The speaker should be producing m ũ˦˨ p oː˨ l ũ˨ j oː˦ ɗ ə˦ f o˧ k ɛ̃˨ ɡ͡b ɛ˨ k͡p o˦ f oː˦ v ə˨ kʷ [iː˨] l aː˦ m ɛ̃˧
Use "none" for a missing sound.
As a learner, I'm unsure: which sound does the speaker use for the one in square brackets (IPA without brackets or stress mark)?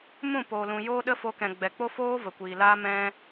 iː˨